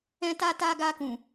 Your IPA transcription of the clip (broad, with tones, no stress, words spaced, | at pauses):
ɛ̃˧ta˧ta˧ ɡa˧kũ˨